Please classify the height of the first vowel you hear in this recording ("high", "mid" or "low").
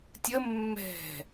mid